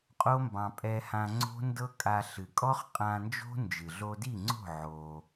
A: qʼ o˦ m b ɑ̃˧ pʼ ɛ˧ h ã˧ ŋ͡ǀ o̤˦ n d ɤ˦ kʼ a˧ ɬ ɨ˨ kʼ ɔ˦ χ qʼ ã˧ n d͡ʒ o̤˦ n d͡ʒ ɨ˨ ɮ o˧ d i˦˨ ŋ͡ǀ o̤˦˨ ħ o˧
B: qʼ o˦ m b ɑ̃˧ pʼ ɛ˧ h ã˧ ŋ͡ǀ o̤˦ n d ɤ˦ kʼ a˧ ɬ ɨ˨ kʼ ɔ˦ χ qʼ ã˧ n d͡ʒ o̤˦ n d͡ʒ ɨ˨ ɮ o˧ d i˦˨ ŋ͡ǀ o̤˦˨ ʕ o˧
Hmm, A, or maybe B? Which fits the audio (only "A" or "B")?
B